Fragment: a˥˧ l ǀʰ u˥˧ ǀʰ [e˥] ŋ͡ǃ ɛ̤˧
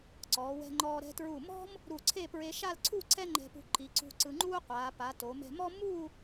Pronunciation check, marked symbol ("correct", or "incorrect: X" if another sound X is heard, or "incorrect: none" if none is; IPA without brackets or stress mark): incorrect: ɛ˥